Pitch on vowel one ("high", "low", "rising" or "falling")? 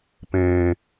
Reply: low